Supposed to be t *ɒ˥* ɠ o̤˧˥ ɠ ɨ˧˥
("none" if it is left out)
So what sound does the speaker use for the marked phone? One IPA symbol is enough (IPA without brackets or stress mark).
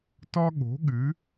ɒ˥